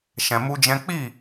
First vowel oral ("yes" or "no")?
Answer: no